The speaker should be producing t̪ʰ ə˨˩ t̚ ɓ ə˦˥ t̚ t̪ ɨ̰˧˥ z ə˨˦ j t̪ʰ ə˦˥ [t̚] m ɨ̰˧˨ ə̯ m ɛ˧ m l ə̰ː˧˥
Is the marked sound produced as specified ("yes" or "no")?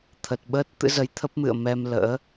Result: no